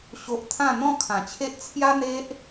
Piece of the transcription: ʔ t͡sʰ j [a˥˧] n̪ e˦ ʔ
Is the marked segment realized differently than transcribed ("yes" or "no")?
yes